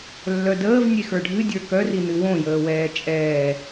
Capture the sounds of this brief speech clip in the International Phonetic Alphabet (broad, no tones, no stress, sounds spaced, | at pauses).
lː œ d əː v nʲ e x ə˞ ɖʱ ɨ dʲ ə˞ k œ r i n ɨ w õ j əː w ɛː t͡ʃʼ ɛː